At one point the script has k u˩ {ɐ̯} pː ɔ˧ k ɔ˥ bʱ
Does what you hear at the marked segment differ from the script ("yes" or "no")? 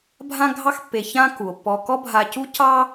yes